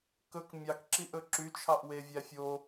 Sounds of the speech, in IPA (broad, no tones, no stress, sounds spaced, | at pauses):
k ɵ k mʲ ɑ k ǁ i ʔ ɵ ǁ y t͡ʃʰ ɑ ʔ w e vʲ æ fʲ o